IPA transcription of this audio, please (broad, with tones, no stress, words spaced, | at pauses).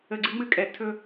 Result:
ə˨ɡ͡ǀɨ˦ŋ͡mɨ˦kʼɛ˨ tʰɵ˦